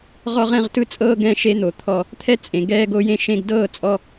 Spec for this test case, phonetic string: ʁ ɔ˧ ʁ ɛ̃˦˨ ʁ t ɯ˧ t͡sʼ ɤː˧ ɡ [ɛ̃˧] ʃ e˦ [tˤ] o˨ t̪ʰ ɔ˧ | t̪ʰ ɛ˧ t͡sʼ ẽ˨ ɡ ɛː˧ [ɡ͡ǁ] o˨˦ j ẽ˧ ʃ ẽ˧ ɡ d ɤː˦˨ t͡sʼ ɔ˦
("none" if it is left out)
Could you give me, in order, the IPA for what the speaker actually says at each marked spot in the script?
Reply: ɛ̃˦, n̪, ɡ

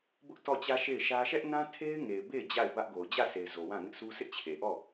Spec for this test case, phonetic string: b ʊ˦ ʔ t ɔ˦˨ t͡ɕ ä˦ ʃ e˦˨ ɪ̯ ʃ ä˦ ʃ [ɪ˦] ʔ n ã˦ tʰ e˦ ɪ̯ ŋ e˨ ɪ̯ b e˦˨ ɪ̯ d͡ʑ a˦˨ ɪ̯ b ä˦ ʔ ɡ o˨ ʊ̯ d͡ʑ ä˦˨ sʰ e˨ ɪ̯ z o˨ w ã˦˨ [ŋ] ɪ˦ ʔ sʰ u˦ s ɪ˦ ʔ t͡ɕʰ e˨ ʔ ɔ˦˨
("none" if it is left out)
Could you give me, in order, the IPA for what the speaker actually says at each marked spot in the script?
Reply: ɛ˦, ŋ

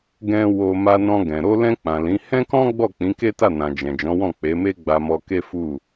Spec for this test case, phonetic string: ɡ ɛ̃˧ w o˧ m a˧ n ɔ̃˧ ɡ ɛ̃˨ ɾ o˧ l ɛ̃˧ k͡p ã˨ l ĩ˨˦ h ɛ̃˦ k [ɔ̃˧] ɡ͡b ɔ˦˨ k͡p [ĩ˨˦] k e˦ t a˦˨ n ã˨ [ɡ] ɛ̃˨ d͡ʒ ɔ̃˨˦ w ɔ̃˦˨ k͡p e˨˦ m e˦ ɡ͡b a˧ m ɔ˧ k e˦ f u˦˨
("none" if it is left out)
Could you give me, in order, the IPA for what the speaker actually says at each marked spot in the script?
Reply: ɔ̃˦, ĩ˨˦, d͡ʒ

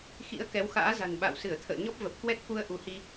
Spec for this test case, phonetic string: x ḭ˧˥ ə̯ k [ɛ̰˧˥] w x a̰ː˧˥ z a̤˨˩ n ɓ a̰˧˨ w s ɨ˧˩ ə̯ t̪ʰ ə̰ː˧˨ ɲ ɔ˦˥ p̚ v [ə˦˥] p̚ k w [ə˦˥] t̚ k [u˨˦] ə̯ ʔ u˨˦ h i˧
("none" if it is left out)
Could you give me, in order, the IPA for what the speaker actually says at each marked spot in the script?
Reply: ɛ˨˦, ə˨˩, ɛ˦˥, u˧

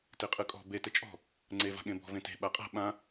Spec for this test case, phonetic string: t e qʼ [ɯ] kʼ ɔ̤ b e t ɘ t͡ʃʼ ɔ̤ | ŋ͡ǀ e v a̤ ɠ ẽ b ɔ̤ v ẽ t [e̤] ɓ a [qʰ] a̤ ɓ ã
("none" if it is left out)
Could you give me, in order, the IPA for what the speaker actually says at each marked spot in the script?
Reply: ɯ, e̤, qʼ

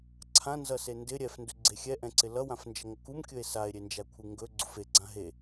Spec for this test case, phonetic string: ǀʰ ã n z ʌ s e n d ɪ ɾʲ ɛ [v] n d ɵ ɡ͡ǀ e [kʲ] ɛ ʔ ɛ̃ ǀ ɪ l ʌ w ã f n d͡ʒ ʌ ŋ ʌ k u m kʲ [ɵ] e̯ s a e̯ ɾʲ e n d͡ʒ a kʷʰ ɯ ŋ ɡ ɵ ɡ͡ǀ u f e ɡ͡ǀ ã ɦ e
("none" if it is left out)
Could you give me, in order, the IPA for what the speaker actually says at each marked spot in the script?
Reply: f, xʲ, ɵ

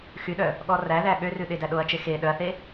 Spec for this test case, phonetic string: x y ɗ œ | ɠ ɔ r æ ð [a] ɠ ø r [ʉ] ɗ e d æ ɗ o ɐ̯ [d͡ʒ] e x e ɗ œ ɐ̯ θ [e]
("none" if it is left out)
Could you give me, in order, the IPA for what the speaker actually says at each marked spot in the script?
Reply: æ, ʉ, t͡ʃ, e

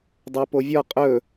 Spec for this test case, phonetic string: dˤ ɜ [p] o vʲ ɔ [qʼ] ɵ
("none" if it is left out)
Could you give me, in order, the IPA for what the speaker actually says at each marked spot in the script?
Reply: p, qʼ

